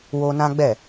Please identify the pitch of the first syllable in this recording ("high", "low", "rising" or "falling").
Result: high